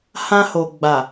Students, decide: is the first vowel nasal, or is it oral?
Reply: nasal